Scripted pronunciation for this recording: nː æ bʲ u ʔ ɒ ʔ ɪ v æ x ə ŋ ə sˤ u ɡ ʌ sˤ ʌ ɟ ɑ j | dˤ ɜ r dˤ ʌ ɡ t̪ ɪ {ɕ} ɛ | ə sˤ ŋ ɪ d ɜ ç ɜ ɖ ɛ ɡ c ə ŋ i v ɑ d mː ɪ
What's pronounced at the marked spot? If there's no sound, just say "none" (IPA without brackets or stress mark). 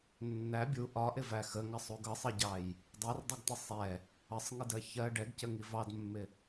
sˤ